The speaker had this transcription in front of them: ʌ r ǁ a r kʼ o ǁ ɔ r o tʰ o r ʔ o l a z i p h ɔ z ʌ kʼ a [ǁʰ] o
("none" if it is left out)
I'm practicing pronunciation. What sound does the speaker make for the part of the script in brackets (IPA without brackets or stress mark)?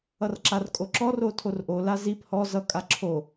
ǁʰ